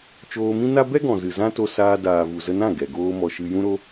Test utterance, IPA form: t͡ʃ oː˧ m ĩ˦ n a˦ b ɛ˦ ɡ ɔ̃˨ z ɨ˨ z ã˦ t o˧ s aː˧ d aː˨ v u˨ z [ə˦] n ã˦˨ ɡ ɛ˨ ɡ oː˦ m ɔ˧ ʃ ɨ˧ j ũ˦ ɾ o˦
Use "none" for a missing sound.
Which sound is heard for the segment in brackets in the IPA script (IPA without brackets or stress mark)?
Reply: ə˧